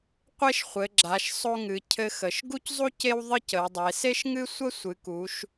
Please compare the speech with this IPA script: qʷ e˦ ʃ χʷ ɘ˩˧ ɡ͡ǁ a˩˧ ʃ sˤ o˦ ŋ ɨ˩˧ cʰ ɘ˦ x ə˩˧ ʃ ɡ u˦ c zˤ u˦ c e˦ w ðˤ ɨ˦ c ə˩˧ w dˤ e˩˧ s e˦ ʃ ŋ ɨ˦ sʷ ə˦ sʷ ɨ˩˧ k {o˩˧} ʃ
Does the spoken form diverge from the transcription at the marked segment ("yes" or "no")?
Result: yes